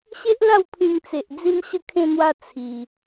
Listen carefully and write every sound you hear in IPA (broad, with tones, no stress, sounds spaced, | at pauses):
ɕ e˦ ʔ l a˥˧ w pʰ ĩ˧ ŋ t͡s e˨ ʔ d͡z i˧ n ɕ ə˧ kʰ ẽ˧ n̪ w a˧ t͡sʰ i˧